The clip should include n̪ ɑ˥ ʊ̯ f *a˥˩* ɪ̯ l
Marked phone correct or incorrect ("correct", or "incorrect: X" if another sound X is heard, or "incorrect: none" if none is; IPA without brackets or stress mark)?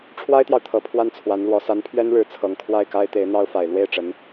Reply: incorrect: a˨˩